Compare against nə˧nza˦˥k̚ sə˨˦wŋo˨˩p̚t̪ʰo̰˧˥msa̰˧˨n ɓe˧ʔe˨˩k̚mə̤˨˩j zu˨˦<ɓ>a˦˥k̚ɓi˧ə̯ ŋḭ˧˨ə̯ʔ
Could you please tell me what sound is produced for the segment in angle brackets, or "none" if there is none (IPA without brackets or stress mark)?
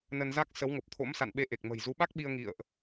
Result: ɓ